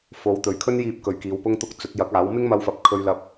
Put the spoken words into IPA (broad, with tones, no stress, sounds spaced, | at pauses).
f o˨˧ w t̪ ɵ˨ ɥ kʰ ɵ˥ n j iː˧ p̚ k ɵ˨ ɥ k iː˨˧ w p ʊ˧ ŋ t̪ ʊ˧ k̚ t͡s ɵ˨˥ t̚ j ɐ˨˥ k̚ aː˨˥ w m ɪ˥ ŋ m ɐ˧ w f ɐ˨˥ p̚ kʰ ɵ˧ ɥ l ɐ˧ p̚